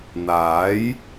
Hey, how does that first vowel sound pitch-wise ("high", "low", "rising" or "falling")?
rising